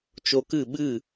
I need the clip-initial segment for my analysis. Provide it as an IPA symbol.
t͡ʃ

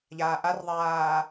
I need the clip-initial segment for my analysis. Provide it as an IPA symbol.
ʎ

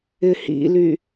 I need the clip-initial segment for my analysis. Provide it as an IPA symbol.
ɪ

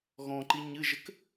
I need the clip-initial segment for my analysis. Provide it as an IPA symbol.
ɣ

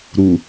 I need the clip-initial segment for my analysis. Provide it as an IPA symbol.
ɾ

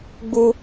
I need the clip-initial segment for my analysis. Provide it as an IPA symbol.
ɡ͡b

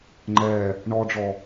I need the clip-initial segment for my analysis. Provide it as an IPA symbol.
ŋ͡ǃ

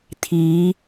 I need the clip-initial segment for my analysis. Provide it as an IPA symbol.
t̪ʰ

